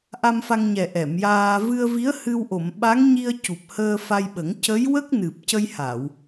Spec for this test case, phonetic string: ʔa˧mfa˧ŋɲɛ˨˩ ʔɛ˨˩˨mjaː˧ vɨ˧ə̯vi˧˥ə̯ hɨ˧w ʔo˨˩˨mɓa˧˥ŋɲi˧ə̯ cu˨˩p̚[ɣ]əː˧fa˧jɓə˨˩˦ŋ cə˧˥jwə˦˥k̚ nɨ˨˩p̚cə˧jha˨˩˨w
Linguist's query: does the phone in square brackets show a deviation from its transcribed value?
yes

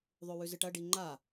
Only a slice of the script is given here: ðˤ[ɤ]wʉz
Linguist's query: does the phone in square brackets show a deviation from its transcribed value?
yes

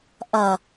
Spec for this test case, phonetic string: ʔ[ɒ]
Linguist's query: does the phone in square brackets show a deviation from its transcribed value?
yes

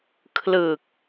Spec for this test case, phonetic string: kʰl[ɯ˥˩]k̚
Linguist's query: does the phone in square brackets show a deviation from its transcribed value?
yes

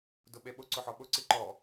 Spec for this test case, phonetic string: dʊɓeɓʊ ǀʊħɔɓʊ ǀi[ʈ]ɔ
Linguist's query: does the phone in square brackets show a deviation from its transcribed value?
yes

